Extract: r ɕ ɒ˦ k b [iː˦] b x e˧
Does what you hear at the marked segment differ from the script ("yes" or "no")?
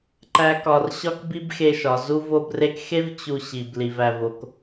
yes